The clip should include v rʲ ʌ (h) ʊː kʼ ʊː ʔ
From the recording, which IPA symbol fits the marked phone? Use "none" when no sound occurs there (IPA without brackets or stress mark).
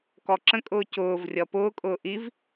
p